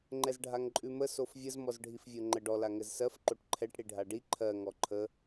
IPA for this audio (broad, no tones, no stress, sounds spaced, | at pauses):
ŋ͡ǃ ɛ z ɖʱ a ŋ ǃʼ ʉ m ə s o f vʲ ə z m ɔ z ɖʱ i f vʲ o ŋ͡ǃ ə ɖ ɔ l a ŋ ɘ z s ɜ f ǃ o ʈ ǃʰ ɛ ʈ ɽ i ɖʱ a ɖ i ǃʰ ɜ ŋ ɔ ǃʰ ə